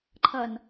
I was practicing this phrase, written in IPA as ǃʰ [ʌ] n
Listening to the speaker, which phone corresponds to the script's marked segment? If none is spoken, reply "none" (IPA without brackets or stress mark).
ʌ